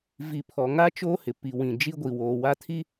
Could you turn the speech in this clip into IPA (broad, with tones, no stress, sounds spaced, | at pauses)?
v i˨ pʰ ɔ˨ ŋ a˦ t͡ʃ oː˦ h ɪ˨ p i˨ w ĩ˨ d͡ʒ i˦ ɡʷ i˨ w oː˨ w a˦ tʰ i˦